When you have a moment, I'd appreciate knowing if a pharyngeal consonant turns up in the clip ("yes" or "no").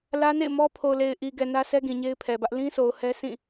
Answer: no